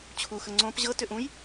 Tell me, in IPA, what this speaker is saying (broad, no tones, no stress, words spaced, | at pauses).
t͡ɕʰuxə ŋ͡ǀõp ʑɤ tʏʔũj